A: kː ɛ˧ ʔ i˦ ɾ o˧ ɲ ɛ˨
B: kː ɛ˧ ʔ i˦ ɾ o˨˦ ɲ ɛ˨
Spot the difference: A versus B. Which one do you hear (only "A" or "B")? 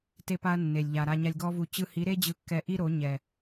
B